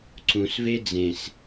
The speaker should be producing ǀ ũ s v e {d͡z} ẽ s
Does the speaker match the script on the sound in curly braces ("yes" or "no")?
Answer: yes